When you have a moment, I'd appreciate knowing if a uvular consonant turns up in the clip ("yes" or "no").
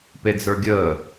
no